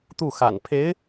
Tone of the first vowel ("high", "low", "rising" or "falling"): falling